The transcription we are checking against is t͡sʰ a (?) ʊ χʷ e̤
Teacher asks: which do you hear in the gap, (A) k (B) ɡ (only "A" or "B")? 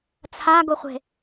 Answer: B